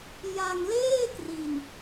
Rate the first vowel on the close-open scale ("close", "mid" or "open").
open